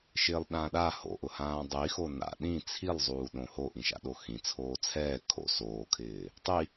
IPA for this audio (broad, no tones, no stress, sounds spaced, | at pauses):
ʃ ɪː lˠ ɗ ãː ɗ a h o̰ ʔ ʊ h ãː dˤ i x o n a̰ ɗ ĩ t͡sʰ i lˠ zˤ uː ɗ õ h o ʔ ĩ ʃ a̰ ɗ o x ĩ t͡sʰ oː t͡sʰ ɛː kʰ o̰ s oː kʰ ɪː | tˤ i